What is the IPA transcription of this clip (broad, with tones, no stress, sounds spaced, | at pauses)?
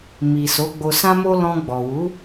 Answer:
m i˨ s o˨˦ ɡ͡b o˧ s ã˦ m o˦ l ɔ̃˧ ɡ͡b ɔ˨ w u˨˦